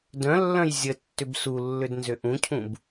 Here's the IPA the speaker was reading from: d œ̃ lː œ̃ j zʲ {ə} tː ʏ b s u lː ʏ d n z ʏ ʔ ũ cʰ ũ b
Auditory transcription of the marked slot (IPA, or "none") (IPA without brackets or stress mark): ə